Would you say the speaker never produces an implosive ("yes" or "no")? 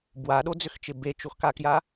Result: no